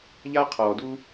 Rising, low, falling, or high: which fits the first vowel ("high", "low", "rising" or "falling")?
high